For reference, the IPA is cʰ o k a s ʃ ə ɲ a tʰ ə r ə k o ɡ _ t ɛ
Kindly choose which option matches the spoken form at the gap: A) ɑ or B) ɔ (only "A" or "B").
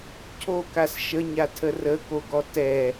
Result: B